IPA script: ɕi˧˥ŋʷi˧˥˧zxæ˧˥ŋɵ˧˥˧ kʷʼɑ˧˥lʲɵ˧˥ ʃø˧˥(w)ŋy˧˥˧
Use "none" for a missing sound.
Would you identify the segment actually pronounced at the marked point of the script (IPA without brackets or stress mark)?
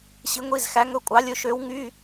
w